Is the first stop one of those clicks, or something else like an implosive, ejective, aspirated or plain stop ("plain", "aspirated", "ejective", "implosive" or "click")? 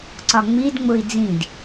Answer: click